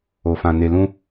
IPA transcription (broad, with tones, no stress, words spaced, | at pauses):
o˨fã˨ ne˨ lũ˧